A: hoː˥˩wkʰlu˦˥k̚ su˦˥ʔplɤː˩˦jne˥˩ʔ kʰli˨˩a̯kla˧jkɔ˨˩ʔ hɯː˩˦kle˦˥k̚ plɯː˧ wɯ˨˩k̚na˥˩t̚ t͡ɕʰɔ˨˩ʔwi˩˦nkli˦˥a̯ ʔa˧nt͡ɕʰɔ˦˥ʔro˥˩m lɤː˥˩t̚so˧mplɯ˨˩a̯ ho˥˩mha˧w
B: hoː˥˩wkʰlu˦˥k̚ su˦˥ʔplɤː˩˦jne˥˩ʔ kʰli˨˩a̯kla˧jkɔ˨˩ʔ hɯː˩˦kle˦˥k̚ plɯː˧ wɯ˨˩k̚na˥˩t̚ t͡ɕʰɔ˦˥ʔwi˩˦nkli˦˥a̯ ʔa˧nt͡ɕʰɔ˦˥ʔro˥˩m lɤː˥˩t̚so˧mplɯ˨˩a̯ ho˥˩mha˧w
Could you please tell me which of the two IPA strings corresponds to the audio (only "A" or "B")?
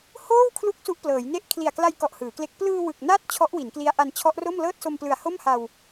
B